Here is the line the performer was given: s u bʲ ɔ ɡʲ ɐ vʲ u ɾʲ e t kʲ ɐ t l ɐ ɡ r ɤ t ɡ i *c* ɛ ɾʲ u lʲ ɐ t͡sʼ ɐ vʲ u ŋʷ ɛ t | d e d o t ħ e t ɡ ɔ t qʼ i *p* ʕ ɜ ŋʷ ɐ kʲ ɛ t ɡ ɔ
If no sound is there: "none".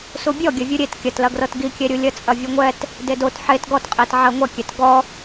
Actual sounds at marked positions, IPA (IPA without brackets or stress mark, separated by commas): kʲ, t